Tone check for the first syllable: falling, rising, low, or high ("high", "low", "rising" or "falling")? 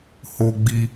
high